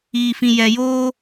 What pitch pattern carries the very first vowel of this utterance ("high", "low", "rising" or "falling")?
low